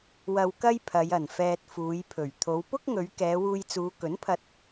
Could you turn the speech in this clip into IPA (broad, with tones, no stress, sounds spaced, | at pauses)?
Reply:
w ɐ˧ w k ɐ˥ j pʰ ɐ˨˧ j ɐ˨˩ n f ɛː˧ t̚ f uː˨˧ j pʰ ɵ˨˩ ɥ t̪ʰ o˨˧ w p ʊ˥ k̚ ŋ ɵ˨˧ ɥ k ɛː˨˧ w uː˧ j t͡s uː˨˧ k ɵ˨˥ n pʰ ɐ˧ t̚